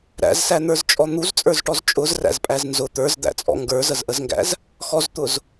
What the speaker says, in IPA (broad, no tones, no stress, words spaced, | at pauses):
ɾæ̰zsæn̪ə˞zt͡ʃʼɔ n̪uzt͡sʼə˞zʈɔz t͡ʃʼʊzræ̰zpʼæz nzʊ t̪ə˞zd̪æ̰t͡sʼɔ̰ ŋɡə˞zəzʔəzŋɡæ̰z | xɔzt̪ʊz